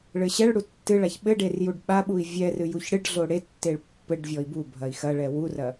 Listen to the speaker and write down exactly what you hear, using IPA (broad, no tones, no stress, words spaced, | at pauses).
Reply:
ɭɘɕɛɭɽu tːɨɭaç ɓɘɖer juɖɓaɓui̯ vʲɛ rɨjuçɽɨɖɮo ɽetːeɭ pːɘɖvʲɔi̯ bubʱɐi̯ xɐɭɛ wurɐ